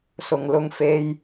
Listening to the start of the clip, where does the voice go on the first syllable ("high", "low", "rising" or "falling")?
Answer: low